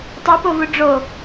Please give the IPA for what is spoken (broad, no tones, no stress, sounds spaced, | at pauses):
tˤ i p o v u ɖ͡ʐ o